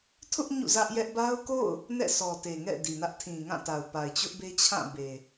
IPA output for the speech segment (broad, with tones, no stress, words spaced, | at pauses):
tʰʊ˦ʔ ɲṵ˦˨zä˦ʔjɛ˦ʔ ba˦ʊ̯ko̰˦˨ʊ̯ | nɛ̰˦˨sɔ˨te˨ŋɛ̰˦˨ di˨nä˦ʔ tʰĩ˨ŋã˦˨ta˨ʊ̯pa˨ɪ̯ t͡ɕʊ˦ʔbe˦t͡ɕʰã˦˨ be˨